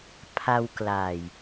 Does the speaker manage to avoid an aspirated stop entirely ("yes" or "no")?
no